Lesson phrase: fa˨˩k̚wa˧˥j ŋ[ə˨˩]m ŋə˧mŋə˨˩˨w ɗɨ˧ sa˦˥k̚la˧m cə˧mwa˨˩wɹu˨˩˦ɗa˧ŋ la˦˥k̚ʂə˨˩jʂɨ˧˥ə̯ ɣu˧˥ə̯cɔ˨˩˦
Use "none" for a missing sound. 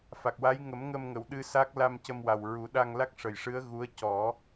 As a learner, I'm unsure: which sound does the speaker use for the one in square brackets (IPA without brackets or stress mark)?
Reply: ə˨˩˦